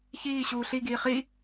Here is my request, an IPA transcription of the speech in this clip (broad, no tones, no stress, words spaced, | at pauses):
çiːɕuː ɬiɡiː χi